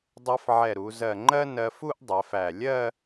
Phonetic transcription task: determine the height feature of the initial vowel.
mid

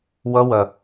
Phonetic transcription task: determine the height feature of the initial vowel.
mid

